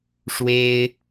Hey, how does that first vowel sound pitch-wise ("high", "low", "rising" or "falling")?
high